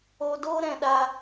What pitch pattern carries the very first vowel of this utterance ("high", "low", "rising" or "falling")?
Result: low